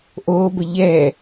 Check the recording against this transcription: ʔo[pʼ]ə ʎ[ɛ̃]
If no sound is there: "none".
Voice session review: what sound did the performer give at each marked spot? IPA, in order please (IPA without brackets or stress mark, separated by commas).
b, ɛ